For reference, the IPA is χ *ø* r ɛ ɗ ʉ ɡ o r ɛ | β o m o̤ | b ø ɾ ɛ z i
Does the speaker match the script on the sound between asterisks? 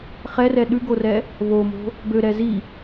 no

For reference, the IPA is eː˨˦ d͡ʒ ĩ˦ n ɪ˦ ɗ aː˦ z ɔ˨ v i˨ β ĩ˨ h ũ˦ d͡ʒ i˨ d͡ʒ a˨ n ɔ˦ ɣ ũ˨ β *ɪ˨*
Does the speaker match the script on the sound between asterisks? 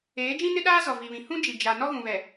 no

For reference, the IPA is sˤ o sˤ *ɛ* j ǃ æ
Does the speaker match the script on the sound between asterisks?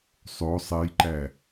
yes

